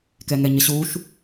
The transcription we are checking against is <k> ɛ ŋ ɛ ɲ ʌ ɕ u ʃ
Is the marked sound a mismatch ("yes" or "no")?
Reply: no